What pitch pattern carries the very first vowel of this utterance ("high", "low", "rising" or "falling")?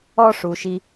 high